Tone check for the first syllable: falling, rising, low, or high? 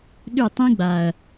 falling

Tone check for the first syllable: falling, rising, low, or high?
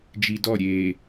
low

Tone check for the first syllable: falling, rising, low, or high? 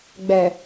low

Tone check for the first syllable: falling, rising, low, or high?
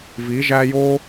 rising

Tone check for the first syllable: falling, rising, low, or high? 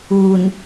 low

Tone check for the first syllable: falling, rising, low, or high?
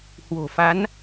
low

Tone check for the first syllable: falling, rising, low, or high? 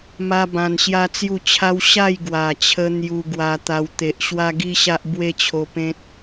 high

